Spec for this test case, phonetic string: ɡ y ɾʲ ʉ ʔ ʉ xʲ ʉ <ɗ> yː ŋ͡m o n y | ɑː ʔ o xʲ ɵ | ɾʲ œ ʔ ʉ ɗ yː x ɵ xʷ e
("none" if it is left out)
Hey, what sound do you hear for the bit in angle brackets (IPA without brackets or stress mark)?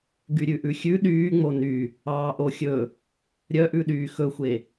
ɗ